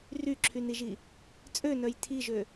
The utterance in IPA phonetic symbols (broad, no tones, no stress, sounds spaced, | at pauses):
r y ǁʰ y n i ʒ i | t͡sʼ ø n œ j tʰ i ʒ ø